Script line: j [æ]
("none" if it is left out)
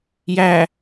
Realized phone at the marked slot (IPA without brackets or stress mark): æ